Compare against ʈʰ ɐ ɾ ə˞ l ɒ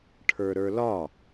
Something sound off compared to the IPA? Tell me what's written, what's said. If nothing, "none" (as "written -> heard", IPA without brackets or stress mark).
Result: ɐ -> ə˞